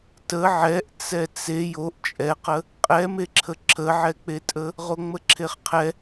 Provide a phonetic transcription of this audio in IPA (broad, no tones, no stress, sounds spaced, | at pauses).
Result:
t ə ʕ ɛ ʔ t͡s ɛ t͡s e j o ʔ t͡ʃʼ ɛ q ə | qʼ ɛ m e ǁʰ ə ǁʰ ə ʕ ɛ k͡p e tʼ ə | ʁ o ŋ͡m ə ǁʰ e χ qʰ ɛ